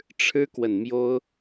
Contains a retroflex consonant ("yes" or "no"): yes